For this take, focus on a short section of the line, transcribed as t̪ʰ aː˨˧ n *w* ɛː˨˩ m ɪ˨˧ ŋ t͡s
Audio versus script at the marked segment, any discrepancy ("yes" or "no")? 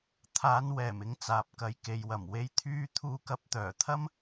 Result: no